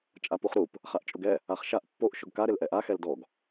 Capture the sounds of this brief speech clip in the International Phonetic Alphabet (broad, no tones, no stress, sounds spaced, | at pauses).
t͡ʃʼ a p u χ ɾ u p | χ a ʔ t͡ʃʼ ʊ ɡ ɛ | a χ ʃ a ʔ pː o ʔ ʃ ʊ ɡ k a ɾ ɪ l ʔ ɛ ʔ a x ɛ l d ɔ ɡ